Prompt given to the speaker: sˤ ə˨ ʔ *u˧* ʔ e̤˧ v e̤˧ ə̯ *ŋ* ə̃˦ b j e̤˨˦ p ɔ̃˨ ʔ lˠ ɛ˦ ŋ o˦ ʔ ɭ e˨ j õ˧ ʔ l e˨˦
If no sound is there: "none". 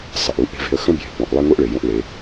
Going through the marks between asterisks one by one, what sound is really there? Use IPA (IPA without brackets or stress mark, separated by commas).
u˧, x